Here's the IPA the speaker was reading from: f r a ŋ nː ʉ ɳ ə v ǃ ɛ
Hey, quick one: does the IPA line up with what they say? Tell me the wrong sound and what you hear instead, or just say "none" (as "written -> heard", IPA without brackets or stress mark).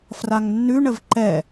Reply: none